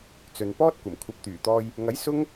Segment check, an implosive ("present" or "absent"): absent